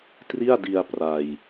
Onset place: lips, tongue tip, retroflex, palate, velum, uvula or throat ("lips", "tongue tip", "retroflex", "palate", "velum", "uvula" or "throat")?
tongue tip